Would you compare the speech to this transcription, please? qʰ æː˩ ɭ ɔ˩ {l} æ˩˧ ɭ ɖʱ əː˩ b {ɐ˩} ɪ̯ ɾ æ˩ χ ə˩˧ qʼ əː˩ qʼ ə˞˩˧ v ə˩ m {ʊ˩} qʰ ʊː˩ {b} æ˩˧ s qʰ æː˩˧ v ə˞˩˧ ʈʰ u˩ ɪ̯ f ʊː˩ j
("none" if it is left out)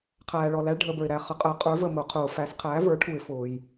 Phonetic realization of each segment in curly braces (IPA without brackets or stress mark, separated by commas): l, ə˞˩, ʊ˩, f